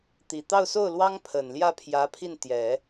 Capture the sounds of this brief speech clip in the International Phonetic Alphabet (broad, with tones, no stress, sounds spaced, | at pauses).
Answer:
t̪ i˨˩ t̪ ɑ˥˧ ʊ̯ s o˥˩ ʊ̯ l w ɑ˥ ŋ pʰ ə˨˩ n l j ä˥˩ pʰ j ä˧˥ pʰ i˥˩ n t̪ j ɛ˨˩˦